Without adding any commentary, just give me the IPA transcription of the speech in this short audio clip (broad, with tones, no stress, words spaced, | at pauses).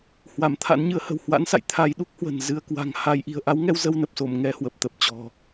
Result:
hwa˧˩mt̪ʰa̰˧˥nɲɨ˨˦ə̯hə̤˨˩w hwa̰˧˥nsa̰˧˨j t̪ʰa˧jɗu˦˥k̚hwə̤˨˩n zɨ˧ə̯ kwa̤˨˩ŋha˧j ʔi̤˨˩ə̯ʔa˨˦wŋɛ˧w zə˧wnə˨˩p̚so˧˩m ŋɛ˧hwə˨˩p̚t̪ə˨˩p̚ t͡ɕɔ̤˨˩